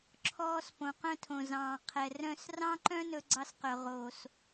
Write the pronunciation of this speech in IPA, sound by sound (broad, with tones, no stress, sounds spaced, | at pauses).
ǁʰ ɔː˦ s p õ˨ q œ̃˦ tʰ õ˨ z ɑ̃ː˨ qʰ ɛ˨ r œ̃˦ s r ɑ̃˦ ǃ œ̃˦ n ɵ˦ ɡ͡ǀ ɑ˦ s q œ˨ ʁ oː˨ s